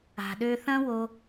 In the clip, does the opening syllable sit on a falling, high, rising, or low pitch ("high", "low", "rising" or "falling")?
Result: low